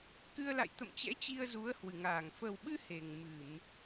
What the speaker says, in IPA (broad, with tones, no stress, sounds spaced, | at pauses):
k ɨ˧ ə̯ l a̰˧˨ j t̪ ə̰˧˨ m t͡ɕ ɛ̰˧˥ t͡ɕ i˧ ə̯ z u˨˦ ə̯ h w ɨ˧˩ ŋ aː˧˩ ŋ f ə˨˩ w ɓ ɨ˧ h e˨˩ ŋ m ɨ˧˩˨ m